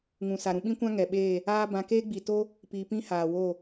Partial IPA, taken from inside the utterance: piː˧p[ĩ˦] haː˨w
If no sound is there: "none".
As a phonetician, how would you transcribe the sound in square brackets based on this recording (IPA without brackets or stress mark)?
ĩ˦